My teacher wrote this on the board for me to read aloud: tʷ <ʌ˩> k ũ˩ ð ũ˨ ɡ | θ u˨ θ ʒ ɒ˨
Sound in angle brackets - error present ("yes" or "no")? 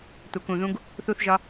no